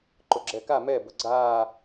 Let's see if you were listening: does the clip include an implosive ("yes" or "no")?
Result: no